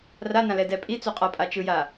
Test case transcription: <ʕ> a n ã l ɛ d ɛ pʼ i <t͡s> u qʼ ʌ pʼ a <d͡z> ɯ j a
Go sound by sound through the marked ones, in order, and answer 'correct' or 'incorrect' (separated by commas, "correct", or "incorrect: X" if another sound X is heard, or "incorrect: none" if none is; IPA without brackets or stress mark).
incorrect: r, correct, incorrect: t͡ʃ